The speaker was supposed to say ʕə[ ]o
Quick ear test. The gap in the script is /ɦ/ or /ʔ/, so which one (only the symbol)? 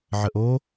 ʔ